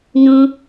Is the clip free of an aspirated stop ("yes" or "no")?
yes